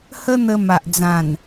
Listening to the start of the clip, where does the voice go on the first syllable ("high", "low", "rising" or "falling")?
high